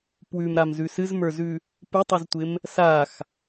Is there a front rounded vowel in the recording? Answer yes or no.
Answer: no